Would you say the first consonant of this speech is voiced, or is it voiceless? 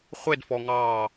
voiceless